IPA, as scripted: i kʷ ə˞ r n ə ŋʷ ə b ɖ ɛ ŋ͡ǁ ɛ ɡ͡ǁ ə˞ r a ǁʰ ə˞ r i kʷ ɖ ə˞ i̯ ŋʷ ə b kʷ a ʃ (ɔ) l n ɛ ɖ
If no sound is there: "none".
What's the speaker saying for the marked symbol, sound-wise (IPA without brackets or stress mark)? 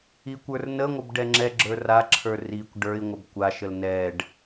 ə